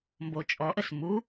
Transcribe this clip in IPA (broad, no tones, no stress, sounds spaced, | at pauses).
m b o t͡ʃʼ ɔ ʔ ə s m u